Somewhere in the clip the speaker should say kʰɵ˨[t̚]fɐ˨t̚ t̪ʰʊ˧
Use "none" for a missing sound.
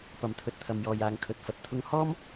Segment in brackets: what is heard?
t̚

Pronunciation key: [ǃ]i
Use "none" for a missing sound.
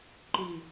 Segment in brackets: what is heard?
ǃ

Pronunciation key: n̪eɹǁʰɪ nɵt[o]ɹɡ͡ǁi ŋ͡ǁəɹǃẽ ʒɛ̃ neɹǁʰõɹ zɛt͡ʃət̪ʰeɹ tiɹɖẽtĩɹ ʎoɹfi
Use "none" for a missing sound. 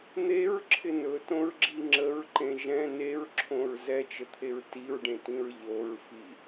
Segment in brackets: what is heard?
õ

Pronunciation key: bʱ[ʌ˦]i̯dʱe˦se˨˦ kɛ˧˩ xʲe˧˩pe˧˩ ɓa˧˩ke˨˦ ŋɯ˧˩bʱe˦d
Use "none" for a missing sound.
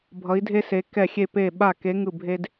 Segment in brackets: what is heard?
ʌ˨˦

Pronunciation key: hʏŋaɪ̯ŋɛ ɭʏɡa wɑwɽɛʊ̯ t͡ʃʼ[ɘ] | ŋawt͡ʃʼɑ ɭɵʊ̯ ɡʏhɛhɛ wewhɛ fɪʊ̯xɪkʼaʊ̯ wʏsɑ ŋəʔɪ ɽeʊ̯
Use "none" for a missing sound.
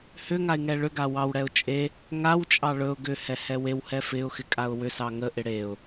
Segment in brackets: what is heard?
e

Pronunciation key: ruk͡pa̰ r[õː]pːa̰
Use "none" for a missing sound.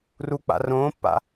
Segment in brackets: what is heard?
õː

